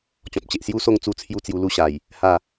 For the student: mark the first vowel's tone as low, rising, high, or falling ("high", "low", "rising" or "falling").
low